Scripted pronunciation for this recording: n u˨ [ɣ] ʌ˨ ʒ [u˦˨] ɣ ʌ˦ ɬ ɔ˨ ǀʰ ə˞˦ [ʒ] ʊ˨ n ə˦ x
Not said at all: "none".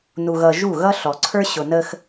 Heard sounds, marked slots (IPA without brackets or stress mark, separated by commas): ɣ, u˦˨, ɕ